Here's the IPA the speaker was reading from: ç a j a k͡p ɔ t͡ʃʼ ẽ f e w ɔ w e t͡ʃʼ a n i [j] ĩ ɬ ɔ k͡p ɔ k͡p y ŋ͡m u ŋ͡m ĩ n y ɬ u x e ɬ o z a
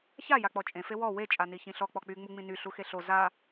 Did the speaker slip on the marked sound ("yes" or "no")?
yes